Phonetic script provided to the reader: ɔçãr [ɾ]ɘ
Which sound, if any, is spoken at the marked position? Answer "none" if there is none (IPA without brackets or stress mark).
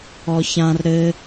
ɾ